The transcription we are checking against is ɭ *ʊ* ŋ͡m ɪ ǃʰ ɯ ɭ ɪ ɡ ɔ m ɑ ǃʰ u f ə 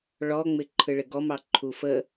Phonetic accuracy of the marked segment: incorrect: ɔ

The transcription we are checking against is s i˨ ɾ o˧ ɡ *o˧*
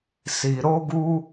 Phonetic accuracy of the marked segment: incorrect: u˧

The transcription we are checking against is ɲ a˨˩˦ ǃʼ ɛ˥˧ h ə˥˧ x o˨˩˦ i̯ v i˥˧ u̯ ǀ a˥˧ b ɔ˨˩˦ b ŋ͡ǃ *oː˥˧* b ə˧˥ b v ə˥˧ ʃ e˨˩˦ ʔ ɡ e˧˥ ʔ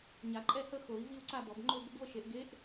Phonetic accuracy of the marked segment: incorrect: o˥˧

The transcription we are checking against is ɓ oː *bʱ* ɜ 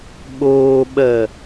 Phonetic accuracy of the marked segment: incorrect: ɓ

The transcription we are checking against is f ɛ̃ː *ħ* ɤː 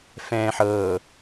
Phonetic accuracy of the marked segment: correct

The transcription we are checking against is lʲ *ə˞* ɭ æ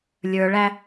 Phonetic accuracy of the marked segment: correct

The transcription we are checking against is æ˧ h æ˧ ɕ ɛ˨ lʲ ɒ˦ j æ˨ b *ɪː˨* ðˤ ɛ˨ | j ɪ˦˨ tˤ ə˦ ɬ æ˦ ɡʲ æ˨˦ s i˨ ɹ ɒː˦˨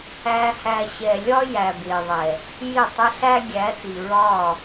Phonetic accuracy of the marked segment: correct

